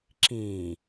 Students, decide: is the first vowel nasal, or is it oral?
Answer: nasal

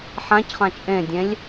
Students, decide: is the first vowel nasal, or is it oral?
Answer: nasal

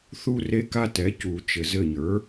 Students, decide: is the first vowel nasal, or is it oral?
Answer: oral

